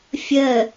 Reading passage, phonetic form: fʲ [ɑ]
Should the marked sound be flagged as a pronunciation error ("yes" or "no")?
yes